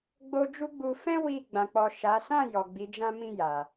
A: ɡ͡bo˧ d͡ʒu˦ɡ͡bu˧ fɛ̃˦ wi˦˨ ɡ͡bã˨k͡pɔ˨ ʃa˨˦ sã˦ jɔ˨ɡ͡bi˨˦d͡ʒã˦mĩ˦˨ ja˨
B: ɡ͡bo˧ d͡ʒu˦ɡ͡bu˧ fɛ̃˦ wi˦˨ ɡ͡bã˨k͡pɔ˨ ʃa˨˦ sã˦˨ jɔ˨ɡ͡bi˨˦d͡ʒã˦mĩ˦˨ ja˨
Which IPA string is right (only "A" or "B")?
B